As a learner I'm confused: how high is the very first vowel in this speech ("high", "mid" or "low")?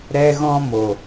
mid